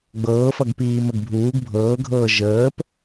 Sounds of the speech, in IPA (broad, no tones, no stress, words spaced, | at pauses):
ɡ͡bɤːfʌɡpiːm əɡbʱuːɡ bʱɤːɡʱɤː ʒəːp